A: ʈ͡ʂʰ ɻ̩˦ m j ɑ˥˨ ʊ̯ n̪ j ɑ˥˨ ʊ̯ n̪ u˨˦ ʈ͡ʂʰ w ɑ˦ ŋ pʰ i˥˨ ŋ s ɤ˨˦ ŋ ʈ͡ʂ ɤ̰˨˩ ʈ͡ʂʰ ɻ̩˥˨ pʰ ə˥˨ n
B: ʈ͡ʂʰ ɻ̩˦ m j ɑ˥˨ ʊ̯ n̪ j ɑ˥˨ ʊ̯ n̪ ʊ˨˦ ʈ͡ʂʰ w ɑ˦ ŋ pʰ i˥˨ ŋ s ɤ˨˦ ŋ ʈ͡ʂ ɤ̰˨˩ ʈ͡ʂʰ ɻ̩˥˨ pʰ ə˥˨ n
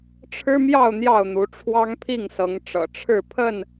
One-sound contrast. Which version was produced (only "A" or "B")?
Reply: A